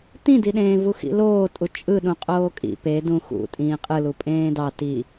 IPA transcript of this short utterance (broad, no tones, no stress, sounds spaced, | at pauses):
t ĩ d i ɗ ẽː v u x ḭ l oː tʼ u t͡ʃʼ ɯ ɗ ũ qʼ oː kʼ ḭ p e d ũ x ṵ tʼ ĩː qʼ ɯ l u pʼ ẽː d ɑ t i